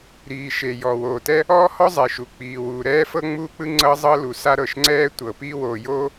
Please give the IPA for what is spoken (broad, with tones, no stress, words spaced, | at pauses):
ɾiː˩ ʃe˩jɔ˩ woː˩tɛ˥ | ɔː˥hɔ˥zˤe˩ʃu˩ k͡piː˩wuː˩ ɾɛː˥fɤ˥ŋ͡muː˥k͡pɯ˥ ŋ͡ǀɤ˥zˤɤ˥lu˩ sa˥ɾɤ˩ʃŋ͡ǀɛː˥ tʷɤ˩ piː˥woː˩joː˥